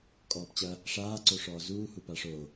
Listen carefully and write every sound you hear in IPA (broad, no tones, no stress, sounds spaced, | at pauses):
kʼ ɔː p t͡ɕ ɐ | ʂ aː ǀ o ʂ ɔː z uː h u p a ʂ o